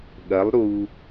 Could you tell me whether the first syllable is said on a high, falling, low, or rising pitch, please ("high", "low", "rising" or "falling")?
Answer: rising